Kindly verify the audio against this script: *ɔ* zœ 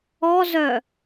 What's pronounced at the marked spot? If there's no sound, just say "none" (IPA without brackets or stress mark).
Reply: ɔ